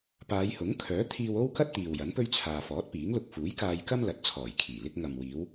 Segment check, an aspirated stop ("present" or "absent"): present